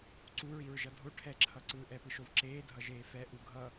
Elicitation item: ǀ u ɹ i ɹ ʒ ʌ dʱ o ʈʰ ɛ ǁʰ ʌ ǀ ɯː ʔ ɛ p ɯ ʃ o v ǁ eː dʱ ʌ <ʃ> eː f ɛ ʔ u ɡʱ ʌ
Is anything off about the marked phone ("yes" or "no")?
yes